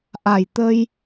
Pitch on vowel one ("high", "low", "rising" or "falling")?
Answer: low